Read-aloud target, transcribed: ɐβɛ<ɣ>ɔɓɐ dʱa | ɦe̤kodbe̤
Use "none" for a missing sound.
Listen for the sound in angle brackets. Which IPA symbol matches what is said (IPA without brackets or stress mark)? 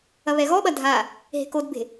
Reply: ɣ